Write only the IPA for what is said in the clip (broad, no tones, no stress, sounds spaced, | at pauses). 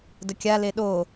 d ə kʲ a l e ɗ o